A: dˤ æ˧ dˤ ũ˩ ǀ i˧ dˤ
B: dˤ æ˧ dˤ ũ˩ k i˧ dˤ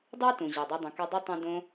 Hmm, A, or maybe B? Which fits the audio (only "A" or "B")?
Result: B